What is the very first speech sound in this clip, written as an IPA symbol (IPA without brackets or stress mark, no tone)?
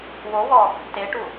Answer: w